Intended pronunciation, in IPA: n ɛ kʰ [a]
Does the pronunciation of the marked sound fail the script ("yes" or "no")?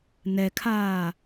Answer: yes